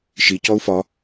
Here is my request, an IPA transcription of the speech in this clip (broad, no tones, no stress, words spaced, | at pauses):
ʃicɔu̯ fɒ